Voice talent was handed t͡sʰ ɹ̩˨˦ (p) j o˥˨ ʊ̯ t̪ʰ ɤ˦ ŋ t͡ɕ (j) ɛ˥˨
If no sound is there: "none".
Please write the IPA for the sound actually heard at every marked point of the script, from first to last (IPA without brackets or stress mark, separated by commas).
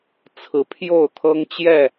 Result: pʰ, j